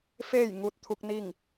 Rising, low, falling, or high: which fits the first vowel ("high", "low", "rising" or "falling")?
falling